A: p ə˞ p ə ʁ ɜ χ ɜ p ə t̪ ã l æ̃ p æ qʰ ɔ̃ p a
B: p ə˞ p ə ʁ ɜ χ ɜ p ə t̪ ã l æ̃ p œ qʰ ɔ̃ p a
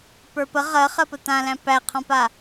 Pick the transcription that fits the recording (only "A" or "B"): A